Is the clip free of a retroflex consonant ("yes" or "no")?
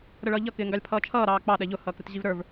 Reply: no